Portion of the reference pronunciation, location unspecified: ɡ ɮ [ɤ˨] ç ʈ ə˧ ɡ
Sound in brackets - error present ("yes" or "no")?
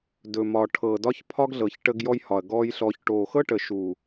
no